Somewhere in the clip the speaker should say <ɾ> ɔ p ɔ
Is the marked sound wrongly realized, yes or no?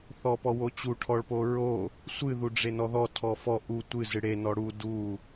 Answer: yes